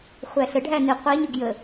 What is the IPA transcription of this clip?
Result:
χʷ æ ɬ ə ɖʱ æ n i qʷ i ɲ ʊ ɡ j ə

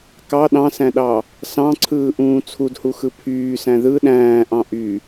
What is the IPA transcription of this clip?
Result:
k ɑ ɗ ɑ̃ s æ̃ ɗ ɑ | s ɑ̃ ǀʰ ɯː ʔ ũː t͡sʰ u d h u x ɯ pʰ yː s æ̃ ð ɯ ɗ æ̃ː ʔ ɑ̃ ʔ y

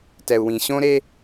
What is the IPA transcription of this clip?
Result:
t ɛ˨ u̯ w ĩ˨ ɕ õ˦ ɾ e˦

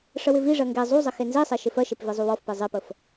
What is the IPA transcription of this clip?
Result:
ʂ ə w ɪ v i ʐ ɜ ŋ ɡ e zˤ u zˤ ɪ x e n z i sˤ e ʃ ɪ f ɜ ʃ e p v i zˤ u w ɔ f p e zˤ e p ə f

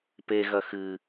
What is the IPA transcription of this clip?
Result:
p e ɣ ɐ x ɨ

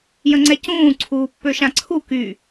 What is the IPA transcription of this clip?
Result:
j ə̃ ŋ͡ǀ ɛ c ũː ǀʰ uː pː ø ʃ ã ǀʰ u k y

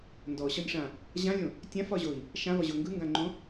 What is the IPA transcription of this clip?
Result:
n d ɔ ɕ ɒ nʲ ʂ ã | ʑ ã lʲ õ | tʲ ã f ɒ ʑ o i̯ | ʃ ã v ɒ ʑ o ŋ ɡ ɯ ŋ ɡ ã ŋ͡ǃ õ

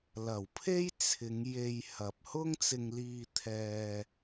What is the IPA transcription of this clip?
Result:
l ɐ˨˩ w pʰ e˥ j t͡sʰ ɪ˨˧ ŋ j e˧ j h ɐ˨ p̚ h ʊ˥ ŋ t͡s ɪ˧ ŋ l iː˧ t̪ʰ ɛː˧

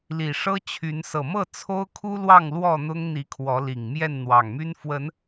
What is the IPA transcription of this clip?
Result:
l i˨˩ ʂ ɤ˦ t͡ɕʰ y˨˦ n s ɤ˨˩ m ɤ˥˨ t͡sʰ o˦ ʊ̯ kʰ u˦ l w ɑ˥˨ ŋ l w ɔ˥˨ n̪ ʊ˦ ŋ n̪ i˨˦ kʰ w ɔ˨˦ l i˨˩ ŋ m j ɛ˥˨ n n̪ w ɑ˨˩ ŋ m y˦ n f w ə˨˦ n

